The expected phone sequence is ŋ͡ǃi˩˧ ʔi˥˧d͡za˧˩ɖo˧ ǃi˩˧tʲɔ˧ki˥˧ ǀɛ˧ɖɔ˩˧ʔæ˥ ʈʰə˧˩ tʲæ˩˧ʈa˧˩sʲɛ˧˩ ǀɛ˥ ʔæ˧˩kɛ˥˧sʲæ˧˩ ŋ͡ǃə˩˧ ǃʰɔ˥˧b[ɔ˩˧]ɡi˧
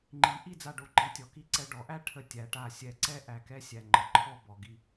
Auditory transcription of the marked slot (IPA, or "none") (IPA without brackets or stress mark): ɔ˩˧